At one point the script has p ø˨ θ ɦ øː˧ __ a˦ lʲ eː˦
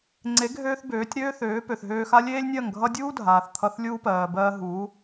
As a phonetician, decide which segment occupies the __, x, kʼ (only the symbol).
x